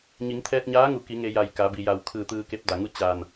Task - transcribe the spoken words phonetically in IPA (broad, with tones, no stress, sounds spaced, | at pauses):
ɲ i˩˧ ŋ t̪ʰ ɛː˧ t̚ ɲ aː˧˥ ŋ u˩˧ k i˩˧ ŋ e˧ j a˧˩ j k a˩˧ b i˩ j a˧˩ w kʰ ɯː˧˩ t̪ ɯː˧ k e˧˥ p̚ d a˩ ŋ u˥˨ t͡ɕ aː˧˩ n